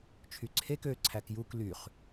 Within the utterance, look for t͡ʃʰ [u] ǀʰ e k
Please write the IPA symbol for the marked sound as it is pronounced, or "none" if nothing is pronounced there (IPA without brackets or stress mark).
y